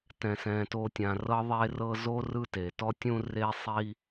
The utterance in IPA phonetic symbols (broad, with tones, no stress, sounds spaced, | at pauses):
t ɛ̃˩ s ɛ̃˩ t o˨ tʲ ã˩ r ɤ˦ ðˤ e˦ r ɤ˦ z o˥ r ɯ˦ t e˩ t ɔ˦ tʲ ũ˦ r e˥ sˤ i˥